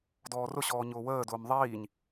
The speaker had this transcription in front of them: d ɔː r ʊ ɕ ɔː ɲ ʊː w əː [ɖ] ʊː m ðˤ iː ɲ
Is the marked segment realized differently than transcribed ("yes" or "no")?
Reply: yes